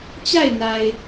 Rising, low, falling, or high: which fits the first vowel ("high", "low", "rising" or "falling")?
falling